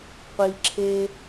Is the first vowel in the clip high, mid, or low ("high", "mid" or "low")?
high